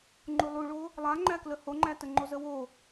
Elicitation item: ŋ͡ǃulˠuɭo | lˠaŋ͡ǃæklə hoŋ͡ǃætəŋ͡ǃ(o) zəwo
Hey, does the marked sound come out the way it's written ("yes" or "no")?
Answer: yes